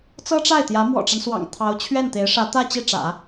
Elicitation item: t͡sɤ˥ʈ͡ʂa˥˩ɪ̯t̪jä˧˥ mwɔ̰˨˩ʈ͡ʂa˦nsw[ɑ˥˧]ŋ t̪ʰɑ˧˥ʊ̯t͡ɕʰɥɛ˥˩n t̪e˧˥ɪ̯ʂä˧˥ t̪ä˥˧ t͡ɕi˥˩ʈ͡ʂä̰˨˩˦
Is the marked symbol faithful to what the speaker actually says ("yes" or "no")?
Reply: no